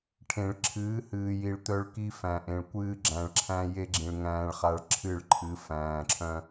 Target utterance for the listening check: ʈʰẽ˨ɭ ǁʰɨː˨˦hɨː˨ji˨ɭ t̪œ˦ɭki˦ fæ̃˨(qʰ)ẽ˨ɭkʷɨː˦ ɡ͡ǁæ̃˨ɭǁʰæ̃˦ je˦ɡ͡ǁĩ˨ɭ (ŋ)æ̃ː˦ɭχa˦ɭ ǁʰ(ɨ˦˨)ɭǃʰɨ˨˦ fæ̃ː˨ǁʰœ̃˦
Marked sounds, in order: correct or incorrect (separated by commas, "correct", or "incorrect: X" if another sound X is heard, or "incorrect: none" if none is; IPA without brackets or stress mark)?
incorrect: ʔ, correct, correct